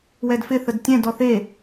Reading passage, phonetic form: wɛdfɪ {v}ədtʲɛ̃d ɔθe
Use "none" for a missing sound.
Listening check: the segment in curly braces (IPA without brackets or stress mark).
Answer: θ